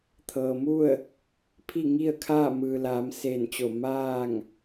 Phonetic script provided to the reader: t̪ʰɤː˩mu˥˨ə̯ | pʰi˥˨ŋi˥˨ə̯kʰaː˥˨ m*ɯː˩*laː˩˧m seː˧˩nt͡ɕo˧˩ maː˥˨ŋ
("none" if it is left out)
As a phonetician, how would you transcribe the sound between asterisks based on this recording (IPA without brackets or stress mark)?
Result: ɯː˩